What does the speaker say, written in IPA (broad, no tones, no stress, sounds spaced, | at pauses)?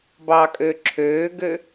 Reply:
b ɑ kʼ ø ǁʰ øː ɡ ø